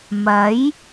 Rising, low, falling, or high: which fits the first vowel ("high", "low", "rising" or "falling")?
rising